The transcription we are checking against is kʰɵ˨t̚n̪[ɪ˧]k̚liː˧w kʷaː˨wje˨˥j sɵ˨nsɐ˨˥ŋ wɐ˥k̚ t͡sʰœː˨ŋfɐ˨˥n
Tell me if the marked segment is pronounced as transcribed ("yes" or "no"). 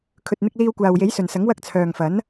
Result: yes